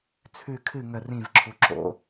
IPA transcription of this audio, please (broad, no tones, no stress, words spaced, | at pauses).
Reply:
t͡sʰʉ kʰɨ ŋə rĩvǁʰu ǁo̰